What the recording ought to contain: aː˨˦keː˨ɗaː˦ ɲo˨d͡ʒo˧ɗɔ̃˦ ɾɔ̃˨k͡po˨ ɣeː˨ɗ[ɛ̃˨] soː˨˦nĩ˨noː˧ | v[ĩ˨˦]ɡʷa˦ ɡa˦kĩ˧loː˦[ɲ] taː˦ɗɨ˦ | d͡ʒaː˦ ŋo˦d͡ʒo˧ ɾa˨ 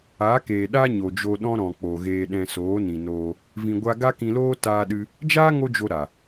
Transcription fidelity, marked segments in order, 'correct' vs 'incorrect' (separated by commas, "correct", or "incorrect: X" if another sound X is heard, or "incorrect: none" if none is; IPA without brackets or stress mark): correct, incorrect: ĩ˧, incorrect: none